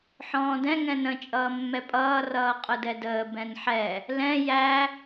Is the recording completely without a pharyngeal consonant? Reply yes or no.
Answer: no